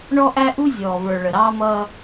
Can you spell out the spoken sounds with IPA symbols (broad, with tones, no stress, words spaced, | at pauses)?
ɳɔ˦ʔæ˦ʔu˦ zʲɔː˨və˞˨ ɭə˨ɾɑː˦mʌː˦